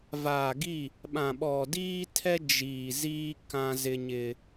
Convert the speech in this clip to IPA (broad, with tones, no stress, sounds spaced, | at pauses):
v aː˨ ɡ i˦˨ | ɓ ã˨ ɓ ɔ˨ d iː˦ tʰ ɛ˦ d͡ʒ iː˨ z iː˦ k ã˦ z ɪ˦ ɲ ɪ˦